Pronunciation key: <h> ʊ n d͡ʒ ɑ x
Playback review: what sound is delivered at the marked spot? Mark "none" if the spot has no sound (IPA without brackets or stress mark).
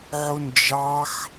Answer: ʕ